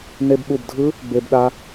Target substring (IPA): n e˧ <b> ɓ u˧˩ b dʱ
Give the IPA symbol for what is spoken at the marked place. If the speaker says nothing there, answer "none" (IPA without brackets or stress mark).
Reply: b